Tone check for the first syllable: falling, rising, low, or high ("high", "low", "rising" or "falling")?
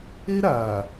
high